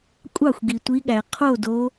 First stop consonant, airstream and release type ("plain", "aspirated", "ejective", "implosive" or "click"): ejective